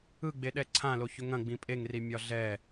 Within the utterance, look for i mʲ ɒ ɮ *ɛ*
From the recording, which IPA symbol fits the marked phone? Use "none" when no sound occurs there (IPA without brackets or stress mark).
ɛ